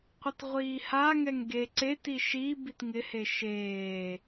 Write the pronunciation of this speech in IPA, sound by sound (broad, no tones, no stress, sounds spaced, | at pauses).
qʷ ɪ t ʁʷ iː h a ŋ ɛ ŋ ɡ e ǀ e t i ʃ i b i t ŋ ɪ h e ʃ eː